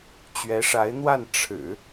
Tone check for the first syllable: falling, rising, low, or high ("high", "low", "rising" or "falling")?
rising